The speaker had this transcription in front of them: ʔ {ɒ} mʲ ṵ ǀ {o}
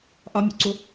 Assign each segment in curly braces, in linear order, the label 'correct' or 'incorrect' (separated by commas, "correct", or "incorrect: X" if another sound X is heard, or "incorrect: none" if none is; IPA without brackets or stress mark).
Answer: correct, correct